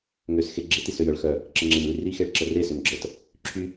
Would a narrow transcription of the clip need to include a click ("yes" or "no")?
yes